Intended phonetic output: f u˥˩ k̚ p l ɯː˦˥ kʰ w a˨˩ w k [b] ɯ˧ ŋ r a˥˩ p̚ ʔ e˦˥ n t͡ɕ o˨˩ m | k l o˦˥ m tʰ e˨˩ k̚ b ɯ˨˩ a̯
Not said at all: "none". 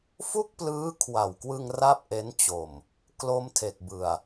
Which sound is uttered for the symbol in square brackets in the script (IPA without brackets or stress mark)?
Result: w